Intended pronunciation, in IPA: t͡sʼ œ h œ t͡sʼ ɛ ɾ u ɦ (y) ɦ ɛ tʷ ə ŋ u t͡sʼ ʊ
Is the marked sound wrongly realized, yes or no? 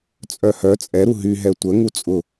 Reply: no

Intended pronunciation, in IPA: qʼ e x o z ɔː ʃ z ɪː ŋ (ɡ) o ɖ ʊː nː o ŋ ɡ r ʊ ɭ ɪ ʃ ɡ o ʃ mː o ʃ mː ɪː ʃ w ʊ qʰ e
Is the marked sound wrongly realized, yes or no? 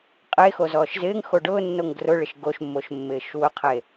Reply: yes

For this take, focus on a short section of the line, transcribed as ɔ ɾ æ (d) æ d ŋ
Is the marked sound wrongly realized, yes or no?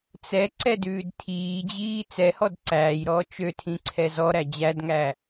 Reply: yes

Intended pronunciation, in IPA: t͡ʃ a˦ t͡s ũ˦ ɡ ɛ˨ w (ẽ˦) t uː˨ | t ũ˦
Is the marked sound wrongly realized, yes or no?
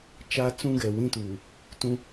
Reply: yes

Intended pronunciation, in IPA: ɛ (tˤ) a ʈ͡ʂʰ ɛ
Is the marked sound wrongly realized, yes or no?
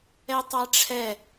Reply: no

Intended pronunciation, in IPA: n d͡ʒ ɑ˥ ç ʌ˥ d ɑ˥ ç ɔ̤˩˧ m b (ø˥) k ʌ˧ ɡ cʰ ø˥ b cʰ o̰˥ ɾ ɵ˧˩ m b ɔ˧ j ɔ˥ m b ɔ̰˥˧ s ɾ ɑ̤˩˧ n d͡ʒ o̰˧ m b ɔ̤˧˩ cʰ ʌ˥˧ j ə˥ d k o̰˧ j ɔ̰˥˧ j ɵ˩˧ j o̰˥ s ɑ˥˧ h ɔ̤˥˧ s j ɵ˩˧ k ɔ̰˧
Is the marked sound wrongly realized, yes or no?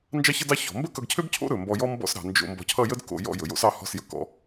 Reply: yes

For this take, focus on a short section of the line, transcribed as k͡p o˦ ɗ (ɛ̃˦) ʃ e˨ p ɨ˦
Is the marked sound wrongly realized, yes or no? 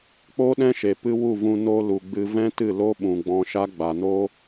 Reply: no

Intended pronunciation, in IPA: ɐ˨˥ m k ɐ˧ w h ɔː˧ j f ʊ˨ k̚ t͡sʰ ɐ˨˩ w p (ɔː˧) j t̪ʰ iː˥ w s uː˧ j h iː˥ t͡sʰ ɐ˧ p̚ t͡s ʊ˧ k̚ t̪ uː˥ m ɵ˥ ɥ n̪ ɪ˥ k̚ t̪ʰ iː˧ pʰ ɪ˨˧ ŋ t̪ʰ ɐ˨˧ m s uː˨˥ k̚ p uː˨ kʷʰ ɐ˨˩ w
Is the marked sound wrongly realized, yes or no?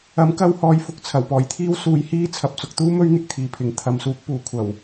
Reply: yes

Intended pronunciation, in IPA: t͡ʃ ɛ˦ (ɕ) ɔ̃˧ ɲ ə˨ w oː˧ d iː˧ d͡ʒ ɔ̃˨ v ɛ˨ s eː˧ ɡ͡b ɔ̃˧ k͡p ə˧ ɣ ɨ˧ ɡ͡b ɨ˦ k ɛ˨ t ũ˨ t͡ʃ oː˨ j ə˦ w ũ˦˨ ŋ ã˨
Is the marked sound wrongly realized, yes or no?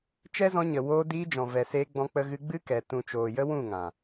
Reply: yes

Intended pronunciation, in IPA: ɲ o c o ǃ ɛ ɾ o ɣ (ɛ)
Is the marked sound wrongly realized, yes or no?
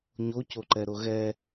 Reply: no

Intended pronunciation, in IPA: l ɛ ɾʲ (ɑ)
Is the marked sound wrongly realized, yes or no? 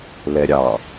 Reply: no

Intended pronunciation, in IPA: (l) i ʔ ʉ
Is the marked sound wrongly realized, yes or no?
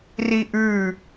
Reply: yes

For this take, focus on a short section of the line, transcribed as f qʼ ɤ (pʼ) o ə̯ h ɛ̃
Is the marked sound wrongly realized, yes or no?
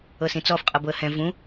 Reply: yes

